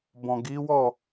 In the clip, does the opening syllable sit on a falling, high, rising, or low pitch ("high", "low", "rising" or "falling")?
low